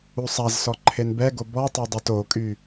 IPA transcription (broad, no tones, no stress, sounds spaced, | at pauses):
u sˤ a z s ɔ ǃʰ e n b ɛ ɡ o b ɔ tˤ o dˤ o t o kʼ y